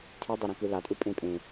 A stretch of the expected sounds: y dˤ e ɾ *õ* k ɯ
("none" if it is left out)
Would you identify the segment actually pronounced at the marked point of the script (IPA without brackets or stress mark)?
ũ